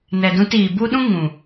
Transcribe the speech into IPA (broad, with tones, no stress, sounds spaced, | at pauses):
n ɛ˨ d ũ˧ t iː˨ b u˦ ɗ ũ˦ ŋ ũ˨